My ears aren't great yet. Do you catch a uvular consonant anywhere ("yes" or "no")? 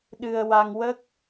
no